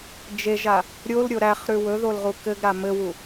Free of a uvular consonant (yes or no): no